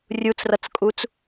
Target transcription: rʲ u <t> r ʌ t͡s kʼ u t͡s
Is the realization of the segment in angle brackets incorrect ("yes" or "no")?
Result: yes